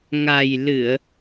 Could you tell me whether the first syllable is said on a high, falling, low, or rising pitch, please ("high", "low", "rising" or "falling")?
low